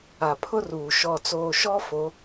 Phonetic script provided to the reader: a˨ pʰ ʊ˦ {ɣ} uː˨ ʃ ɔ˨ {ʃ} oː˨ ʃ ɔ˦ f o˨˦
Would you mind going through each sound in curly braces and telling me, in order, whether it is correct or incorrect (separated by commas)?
incorrect, incorrect